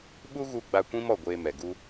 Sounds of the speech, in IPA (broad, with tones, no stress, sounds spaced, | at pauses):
ɓ u˦ ɣ u˧ ɡ͡b a˧ kʷ ĩ˦ m ɔ˦˨ ɡʷ eː˧ m ɛ˨ ɡ u˦